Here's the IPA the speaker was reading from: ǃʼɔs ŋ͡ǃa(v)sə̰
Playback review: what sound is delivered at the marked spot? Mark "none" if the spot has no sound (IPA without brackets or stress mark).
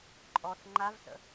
v